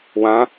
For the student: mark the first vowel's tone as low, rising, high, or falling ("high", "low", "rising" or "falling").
rising